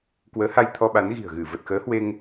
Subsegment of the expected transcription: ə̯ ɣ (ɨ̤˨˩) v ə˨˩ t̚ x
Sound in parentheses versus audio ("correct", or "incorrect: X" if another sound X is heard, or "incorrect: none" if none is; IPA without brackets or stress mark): incorrect: ɨ˧˩